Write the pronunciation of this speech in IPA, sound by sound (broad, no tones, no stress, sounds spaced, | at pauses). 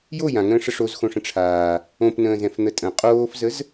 j o j ã ŋ ə̃ː ʂ ə ʂ o z x õ ʂ ə̃ ʈ͡ʂʰ aː | õ p n ə̃ː z ɛ̃ f n̪ ə tʼ ə̃ qʼ oː f z ə z